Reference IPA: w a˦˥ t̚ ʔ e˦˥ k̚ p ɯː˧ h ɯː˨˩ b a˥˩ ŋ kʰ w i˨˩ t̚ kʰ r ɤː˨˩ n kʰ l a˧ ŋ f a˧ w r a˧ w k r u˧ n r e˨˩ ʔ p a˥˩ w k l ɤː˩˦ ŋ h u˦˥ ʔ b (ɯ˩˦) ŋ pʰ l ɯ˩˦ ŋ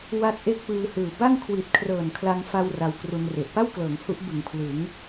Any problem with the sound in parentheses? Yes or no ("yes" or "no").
no